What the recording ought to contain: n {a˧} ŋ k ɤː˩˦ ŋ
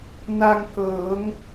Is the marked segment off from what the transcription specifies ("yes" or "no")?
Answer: no